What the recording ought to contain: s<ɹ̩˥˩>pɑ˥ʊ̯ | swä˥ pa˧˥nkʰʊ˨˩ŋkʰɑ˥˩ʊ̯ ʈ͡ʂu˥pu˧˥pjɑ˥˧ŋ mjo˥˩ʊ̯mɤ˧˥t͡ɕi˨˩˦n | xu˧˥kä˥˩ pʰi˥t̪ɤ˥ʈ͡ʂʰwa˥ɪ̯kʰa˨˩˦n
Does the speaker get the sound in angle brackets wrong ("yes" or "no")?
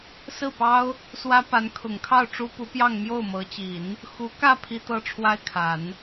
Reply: no